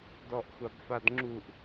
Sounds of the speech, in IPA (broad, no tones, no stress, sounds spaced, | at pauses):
d ɔ ʔ xʷ a b f a d ŋ͡ǁ u ʔ